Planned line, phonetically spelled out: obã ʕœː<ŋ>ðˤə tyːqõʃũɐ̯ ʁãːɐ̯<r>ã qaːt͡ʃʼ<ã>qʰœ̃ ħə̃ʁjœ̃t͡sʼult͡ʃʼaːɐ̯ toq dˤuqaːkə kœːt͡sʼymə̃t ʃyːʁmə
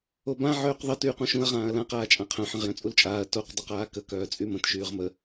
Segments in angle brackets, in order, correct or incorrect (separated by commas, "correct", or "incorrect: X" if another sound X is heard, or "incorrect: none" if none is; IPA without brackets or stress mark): incorrect: q, incorrect: l, correct